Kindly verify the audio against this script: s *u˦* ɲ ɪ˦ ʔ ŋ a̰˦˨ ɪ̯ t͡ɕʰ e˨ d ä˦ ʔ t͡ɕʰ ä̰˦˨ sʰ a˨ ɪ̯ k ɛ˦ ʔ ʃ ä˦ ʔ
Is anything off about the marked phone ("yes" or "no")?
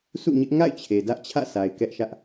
yes